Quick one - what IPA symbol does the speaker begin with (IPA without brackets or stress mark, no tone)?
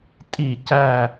tʼ